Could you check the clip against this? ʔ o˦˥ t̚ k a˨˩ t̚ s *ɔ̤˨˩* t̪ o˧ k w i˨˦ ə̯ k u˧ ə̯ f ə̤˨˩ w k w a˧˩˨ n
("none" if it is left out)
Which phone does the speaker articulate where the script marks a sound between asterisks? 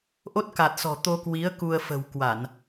ɔ̤˨˩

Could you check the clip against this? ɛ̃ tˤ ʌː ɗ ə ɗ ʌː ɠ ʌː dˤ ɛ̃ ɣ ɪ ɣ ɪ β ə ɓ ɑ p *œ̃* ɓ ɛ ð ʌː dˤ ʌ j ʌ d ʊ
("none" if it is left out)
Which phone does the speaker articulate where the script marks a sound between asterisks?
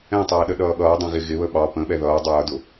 ə̃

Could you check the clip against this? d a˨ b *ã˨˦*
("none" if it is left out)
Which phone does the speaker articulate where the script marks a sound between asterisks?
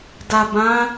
ã˨˦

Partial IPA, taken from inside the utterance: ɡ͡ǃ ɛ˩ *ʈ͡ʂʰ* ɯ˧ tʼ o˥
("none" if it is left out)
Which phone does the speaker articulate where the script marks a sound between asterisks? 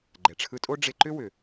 ʈ͡ʂʰ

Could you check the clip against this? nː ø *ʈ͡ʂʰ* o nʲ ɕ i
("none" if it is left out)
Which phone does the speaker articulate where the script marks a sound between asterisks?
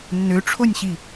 ʈ͡ʂʰ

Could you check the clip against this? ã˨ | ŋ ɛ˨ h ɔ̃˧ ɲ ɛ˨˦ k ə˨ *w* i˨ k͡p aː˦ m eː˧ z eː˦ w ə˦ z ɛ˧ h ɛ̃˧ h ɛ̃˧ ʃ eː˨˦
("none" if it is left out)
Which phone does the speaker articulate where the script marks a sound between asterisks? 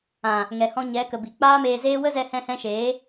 b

